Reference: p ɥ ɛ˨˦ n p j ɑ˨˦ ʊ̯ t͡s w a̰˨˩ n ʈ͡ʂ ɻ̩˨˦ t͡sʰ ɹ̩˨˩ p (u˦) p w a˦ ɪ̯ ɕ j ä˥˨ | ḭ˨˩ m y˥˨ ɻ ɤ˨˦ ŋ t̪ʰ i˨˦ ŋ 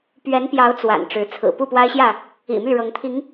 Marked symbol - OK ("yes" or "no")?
no